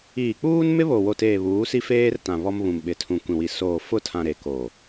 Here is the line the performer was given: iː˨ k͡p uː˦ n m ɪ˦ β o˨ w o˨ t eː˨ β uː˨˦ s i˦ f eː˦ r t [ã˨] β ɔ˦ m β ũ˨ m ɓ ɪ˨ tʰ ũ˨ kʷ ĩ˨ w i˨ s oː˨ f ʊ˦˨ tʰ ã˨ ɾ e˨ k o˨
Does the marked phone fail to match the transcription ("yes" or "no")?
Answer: no